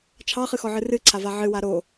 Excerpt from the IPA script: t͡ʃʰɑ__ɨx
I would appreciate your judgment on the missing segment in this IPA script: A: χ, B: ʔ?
A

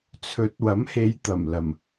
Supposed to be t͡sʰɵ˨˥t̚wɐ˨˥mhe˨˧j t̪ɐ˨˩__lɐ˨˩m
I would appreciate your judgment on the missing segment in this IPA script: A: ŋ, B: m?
B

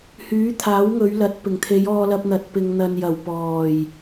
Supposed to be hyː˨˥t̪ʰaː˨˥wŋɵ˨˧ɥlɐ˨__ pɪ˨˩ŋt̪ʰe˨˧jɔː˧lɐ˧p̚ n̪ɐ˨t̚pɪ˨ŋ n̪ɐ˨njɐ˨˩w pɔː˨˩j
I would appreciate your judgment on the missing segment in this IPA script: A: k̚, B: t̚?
B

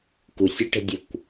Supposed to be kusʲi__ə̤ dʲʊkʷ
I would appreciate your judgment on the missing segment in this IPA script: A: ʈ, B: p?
A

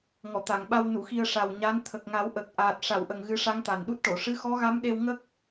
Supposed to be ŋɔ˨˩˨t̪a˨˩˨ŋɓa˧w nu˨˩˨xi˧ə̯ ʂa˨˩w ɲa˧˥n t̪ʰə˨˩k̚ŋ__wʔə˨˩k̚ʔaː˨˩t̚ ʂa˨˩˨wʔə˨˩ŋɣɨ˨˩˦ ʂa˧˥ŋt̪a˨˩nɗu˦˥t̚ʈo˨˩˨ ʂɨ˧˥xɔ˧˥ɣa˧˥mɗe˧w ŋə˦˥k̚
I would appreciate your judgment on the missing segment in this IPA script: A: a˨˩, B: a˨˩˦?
B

